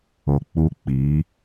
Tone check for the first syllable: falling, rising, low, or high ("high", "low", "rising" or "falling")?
low